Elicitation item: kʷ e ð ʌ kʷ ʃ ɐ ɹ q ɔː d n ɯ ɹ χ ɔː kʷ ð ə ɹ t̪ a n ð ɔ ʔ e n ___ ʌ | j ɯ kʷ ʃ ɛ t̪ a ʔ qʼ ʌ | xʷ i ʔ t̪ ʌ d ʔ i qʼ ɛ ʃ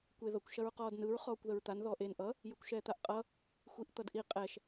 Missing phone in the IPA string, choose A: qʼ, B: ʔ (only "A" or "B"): B